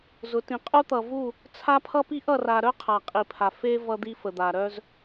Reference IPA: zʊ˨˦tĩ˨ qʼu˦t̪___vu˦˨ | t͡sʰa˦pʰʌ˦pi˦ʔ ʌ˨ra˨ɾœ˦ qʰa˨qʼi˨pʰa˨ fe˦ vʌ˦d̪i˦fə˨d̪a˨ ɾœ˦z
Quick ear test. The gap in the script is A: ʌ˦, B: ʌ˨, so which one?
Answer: B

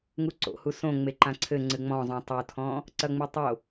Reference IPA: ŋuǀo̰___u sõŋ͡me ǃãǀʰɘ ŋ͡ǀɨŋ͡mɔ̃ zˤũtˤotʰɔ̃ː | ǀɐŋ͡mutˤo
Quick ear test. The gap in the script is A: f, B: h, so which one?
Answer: B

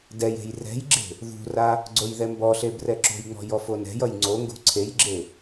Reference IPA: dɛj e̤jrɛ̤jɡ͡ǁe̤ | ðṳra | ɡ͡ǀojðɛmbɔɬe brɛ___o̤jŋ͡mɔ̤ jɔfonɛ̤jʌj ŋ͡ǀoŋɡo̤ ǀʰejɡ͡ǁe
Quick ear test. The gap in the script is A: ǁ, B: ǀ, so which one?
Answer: A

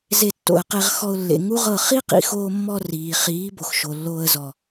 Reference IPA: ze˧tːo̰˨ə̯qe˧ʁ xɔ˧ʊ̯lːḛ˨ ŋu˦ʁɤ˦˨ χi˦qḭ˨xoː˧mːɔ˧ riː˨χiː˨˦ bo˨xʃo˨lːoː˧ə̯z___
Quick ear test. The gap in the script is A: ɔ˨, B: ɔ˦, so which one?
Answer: A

